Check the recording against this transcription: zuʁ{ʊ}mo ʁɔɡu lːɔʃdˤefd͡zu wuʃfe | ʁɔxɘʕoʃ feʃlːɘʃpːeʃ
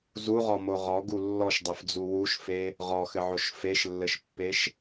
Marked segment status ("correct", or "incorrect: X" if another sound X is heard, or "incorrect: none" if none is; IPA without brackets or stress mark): incorrect: ɔ